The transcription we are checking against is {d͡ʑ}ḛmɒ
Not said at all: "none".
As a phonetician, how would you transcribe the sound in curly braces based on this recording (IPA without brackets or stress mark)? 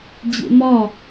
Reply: d͡ʑ